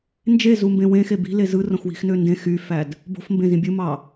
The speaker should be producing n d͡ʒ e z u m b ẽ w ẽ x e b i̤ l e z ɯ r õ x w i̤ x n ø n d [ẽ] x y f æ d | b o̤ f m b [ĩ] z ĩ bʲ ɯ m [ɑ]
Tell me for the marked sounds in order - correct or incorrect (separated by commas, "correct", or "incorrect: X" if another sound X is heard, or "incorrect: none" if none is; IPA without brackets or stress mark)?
correct, incorrect: ẽ, correct